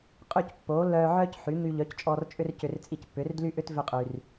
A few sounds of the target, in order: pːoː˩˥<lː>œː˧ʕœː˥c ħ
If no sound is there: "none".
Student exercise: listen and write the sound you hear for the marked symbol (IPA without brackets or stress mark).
lː